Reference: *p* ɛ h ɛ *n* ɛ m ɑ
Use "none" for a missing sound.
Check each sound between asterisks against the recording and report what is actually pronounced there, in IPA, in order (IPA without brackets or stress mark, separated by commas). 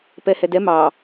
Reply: p, d